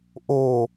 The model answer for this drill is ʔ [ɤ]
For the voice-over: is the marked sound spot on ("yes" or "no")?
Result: no